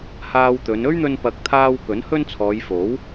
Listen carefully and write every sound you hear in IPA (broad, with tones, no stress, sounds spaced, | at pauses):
h aː˧ w t̪ ɵ˨˧ n ɵ˥ ɥ n̪ ɵ˧ n p ɐ˨ k̚ t̪ʰ aː˧ w k ɵ˨˥ n h ɵ˥ n t͡sʰ ɔː˨˧ j f o˨˥ w